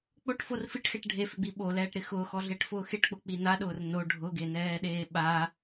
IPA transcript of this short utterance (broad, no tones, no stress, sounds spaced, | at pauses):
k͡p o ʈ f o r f i ʈ x ɛ ʈ ɖʱ e f ɪ ɡ͡b i ɓ o l ɛː ʈ ɾ ɪ x ʊː x ɔ ɮ e ʈ f ʊː x e ʈ k͡p ʊ k͡p i n a ɗ ʊː r n o ɖʱ ʊ ɡ e n ɛː ɗ eː ɓ a